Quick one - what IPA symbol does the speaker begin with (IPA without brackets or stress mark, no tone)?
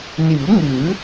n